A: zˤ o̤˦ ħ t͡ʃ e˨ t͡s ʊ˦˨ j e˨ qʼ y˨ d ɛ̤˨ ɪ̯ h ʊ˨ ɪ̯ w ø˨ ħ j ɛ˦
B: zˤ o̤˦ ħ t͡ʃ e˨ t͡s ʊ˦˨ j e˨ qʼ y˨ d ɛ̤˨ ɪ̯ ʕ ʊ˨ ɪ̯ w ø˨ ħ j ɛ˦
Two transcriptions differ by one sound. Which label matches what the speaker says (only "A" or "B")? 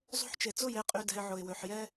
B